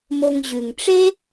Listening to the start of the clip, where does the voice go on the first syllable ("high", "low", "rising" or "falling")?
low